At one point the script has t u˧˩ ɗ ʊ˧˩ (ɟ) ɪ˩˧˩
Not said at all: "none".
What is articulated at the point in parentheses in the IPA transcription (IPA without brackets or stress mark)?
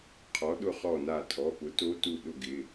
ɡ